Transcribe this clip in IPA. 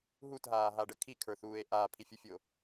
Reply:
ɦutɦaːɦaɖə kʰikʰə˞θuːe̯ ʔaːpʰifʲufʲo

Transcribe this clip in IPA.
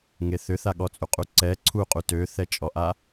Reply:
ŋeθʏθaɠɔ t͡sʼuqʼuǀɛ ǀʰuqʼu tøθɛt͡ʃʼɔʔa

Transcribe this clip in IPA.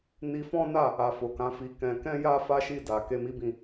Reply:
ni˧fɔ̃˦na˦˨ | a˨ fo˨kã˨˦fi˧kɛ̃˧ kɛ̃˦ja˦ fa˦ʃi˦˨da˨ ke˧ mi˦bĩ˦˨

